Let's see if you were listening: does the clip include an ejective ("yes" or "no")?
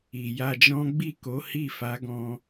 no